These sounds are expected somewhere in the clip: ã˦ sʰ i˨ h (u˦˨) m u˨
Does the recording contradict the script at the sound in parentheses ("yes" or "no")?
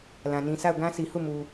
no